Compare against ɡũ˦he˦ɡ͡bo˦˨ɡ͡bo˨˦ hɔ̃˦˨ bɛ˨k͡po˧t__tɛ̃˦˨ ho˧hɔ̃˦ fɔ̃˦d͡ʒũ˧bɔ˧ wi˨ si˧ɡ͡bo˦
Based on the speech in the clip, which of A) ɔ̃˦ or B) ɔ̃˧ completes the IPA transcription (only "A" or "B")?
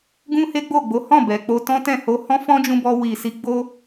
A